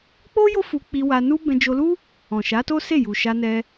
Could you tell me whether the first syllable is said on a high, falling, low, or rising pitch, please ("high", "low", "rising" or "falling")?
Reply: high